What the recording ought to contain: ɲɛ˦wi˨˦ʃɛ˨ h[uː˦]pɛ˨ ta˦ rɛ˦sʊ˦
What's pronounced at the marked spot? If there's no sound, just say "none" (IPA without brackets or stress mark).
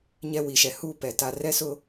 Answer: uː˦